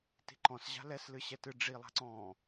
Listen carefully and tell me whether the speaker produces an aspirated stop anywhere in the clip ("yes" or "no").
no